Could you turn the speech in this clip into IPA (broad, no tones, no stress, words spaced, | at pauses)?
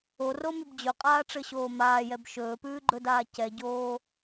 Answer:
oromʉb d͡ʑɵqʼaːʈ͡ʂɘɕoː maːjɛb ʃɵːpʉːɡ͡ǃɵdaː cɛɟoː